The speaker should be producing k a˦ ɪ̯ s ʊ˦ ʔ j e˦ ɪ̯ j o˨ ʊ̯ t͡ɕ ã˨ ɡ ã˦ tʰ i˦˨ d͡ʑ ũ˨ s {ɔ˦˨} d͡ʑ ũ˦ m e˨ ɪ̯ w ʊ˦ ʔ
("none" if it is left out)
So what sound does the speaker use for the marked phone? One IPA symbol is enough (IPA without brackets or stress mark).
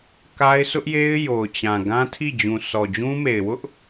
ɔ˨